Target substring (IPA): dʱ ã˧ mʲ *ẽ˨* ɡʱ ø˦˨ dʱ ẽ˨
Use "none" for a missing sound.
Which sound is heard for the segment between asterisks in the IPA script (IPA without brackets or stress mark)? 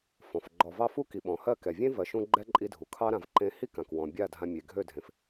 e˨